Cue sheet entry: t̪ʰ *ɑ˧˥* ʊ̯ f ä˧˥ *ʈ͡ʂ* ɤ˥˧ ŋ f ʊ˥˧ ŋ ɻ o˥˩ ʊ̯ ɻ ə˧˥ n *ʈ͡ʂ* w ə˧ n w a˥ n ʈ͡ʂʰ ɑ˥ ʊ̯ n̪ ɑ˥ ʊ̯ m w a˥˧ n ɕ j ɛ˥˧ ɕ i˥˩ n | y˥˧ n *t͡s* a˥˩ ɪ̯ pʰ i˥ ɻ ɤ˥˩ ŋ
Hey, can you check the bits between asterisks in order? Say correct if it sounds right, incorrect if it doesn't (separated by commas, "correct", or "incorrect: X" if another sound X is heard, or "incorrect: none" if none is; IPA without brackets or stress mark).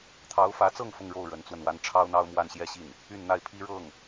correct, incorrect: t͡s, incorrect: t͡s, incorrect: n̪